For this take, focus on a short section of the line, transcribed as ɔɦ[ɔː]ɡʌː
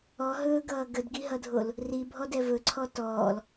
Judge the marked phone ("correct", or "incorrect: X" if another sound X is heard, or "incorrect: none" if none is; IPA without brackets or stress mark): incorrect: ɵː